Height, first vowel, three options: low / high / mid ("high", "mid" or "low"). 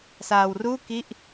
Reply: low